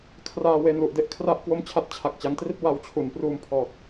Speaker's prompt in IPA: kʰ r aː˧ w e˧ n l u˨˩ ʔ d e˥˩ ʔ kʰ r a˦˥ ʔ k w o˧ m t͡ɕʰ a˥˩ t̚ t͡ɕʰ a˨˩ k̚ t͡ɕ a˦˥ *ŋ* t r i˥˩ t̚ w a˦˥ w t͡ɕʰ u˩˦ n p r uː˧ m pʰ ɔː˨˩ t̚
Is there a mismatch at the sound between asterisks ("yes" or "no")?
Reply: no